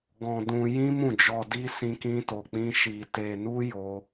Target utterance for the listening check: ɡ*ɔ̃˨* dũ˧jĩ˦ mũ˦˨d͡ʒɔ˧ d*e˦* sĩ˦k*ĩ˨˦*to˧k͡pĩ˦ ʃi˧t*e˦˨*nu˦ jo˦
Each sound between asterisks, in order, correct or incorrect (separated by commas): incorrect, incorrect, incorrect, incorrect